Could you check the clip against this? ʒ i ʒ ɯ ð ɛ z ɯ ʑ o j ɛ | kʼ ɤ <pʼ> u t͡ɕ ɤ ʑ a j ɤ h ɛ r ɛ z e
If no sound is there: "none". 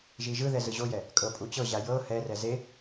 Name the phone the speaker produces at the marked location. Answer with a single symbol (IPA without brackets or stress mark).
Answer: pʼ